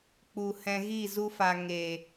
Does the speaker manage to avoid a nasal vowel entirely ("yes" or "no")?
no